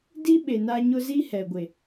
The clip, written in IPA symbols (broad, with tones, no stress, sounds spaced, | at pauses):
d i˦ ɓ e˨ n a˦ ɲ ʊ˦ z i˦ h ɛ˨ ɡʷ e˨